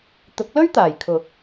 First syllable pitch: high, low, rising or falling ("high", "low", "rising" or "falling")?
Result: rising